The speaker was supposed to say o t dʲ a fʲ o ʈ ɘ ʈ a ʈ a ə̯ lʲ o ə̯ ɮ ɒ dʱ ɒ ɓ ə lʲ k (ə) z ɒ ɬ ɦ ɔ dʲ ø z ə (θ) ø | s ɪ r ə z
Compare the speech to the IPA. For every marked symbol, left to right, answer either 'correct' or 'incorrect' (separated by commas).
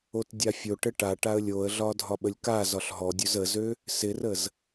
incorrect, incorrect